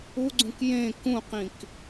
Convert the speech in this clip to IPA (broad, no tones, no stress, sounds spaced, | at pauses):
u ɡ͡ǀ ũ k j ẽ k ũ q ĩ k